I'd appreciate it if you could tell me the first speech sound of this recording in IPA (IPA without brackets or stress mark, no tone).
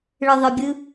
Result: ɭ